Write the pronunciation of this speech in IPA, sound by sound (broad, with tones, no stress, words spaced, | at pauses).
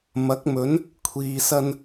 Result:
mɐ˨˥k̚mɵ˨˥n | kʷʰiː˨sɐ˧n